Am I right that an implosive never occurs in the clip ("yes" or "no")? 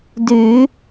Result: yes